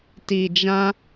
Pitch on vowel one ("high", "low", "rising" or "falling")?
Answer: low